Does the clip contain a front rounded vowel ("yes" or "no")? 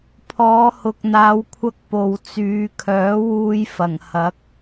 yes